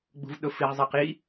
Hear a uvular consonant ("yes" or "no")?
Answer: yes